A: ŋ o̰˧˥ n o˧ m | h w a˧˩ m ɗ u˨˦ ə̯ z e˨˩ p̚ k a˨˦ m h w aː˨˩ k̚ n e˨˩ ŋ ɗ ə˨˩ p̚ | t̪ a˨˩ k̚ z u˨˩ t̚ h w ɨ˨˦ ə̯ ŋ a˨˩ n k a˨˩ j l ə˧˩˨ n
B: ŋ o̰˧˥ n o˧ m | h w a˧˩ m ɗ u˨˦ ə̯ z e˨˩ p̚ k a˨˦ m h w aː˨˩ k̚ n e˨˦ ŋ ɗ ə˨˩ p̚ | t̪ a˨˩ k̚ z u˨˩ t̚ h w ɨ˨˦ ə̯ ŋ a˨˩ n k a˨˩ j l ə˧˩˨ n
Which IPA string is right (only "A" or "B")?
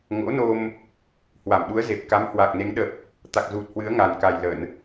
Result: B